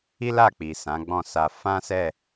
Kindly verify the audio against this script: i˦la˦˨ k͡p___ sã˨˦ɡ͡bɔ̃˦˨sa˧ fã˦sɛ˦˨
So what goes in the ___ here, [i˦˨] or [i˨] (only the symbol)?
i˨